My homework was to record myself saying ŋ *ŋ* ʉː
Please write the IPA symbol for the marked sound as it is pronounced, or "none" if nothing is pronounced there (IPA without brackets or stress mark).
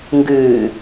ɡ